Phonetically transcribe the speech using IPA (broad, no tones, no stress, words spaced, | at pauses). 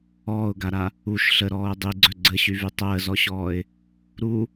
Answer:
ɔːʊ̯ɡaɾa | uʃ ɬəɾɔːʊ̯ dˤiɡ͡ǀœ ɡ͡ǀəɕyvy tˤəːzɔɕɔːɪ̯ | ɾu